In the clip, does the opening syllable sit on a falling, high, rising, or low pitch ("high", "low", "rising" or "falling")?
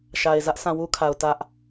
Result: low